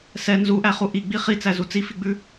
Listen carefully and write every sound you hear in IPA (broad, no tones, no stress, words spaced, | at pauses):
sɛ nzuʔæχu ʔiɡ͡bi χit͡sæzu t͡sifiɡ͡bʉ